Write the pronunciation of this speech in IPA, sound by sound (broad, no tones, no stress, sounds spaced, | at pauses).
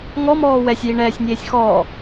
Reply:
ŋ ɔ m ɔː w ɛ sʲ j i ɳ ɛː sʲ nʲ eː sʲ x ɔː